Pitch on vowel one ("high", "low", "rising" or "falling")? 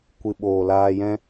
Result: low